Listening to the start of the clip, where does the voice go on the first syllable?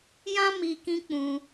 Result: high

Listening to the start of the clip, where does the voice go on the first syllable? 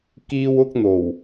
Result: high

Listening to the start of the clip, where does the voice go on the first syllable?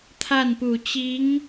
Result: falling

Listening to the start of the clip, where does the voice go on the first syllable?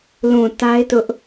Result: low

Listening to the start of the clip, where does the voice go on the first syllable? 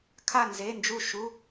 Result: falling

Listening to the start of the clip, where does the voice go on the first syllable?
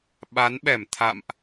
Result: rising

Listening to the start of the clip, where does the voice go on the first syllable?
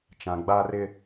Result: low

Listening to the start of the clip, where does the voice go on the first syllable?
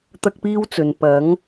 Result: high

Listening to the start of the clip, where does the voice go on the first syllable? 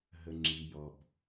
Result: low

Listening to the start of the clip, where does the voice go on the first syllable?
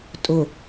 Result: low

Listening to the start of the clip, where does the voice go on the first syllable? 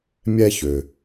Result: high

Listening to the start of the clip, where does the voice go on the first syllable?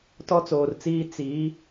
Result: high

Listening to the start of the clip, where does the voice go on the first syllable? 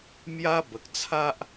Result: high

